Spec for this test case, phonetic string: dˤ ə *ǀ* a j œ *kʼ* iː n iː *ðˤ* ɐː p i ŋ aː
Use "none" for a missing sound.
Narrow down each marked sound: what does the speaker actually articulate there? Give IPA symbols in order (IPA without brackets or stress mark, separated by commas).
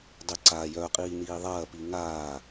ǀ, qʼ, ðˤ